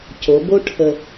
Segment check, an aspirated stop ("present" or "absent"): present